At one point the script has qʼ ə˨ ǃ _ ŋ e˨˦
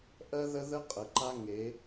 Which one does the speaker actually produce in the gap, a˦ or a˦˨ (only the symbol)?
a˦